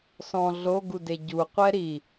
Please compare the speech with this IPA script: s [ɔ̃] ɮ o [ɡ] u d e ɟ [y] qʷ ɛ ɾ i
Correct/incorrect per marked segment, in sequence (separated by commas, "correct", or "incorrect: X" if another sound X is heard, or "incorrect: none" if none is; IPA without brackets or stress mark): correct, correct, incorrect: u